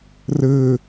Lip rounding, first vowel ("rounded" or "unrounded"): unrounded